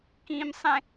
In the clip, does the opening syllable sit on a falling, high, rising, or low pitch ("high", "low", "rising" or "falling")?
high